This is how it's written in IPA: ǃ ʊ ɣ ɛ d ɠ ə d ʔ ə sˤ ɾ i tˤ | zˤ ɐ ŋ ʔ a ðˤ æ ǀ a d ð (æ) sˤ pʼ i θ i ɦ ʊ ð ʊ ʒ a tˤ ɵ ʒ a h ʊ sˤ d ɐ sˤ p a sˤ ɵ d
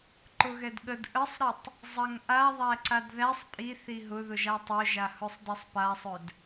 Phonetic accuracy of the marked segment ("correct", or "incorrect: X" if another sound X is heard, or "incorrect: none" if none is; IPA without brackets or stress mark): correct